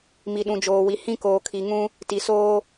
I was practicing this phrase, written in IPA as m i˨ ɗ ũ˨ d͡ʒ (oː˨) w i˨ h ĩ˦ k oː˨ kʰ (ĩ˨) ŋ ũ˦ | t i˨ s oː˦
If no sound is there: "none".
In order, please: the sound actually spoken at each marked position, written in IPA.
oː˨, i˨

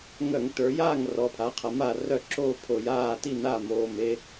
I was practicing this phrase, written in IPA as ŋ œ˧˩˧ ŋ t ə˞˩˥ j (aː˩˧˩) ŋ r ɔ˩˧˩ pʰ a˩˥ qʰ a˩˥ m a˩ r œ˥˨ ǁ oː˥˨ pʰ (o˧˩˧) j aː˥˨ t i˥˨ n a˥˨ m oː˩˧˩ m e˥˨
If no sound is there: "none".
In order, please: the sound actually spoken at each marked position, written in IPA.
aː˥˨, o˧˩˧

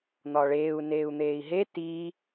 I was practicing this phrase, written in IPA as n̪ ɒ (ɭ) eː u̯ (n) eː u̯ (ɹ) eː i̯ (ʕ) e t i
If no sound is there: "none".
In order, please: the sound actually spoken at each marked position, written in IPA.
ɭ, n, n̪, ɦ

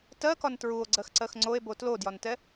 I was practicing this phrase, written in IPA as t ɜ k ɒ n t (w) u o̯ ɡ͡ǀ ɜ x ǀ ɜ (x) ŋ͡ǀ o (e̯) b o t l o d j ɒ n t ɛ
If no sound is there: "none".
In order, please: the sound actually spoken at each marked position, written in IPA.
ɹ, x, e̯

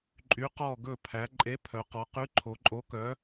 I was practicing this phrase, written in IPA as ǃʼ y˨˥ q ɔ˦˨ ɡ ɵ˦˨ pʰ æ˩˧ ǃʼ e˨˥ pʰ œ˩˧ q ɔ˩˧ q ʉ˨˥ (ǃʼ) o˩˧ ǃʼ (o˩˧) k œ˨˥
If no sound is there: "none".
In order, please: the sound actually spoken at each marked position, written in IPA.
ǃʰ, o˨˥

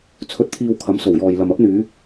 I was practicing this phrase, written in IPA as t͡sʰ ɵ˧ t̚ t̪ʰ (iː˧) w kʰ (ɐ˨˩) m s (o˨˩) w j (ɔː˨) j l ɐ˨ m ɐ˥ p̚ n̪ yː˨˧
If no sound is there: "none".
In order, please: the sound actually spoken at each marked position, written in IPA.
iː˧, ɐ˨˥, o˨˩, ɔː˨

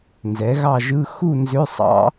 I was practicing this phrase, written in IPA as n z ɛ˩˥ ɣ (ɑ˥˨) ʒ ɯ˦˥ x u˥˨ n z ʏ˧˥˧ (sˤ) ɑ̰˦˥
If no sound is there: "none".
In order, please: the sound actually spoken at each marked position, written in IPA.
ɑ˥˨, sˤ

